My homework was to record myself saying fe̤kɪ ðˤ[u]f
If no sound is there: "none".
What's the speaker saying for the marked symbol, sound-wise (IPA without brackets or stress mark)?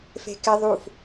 u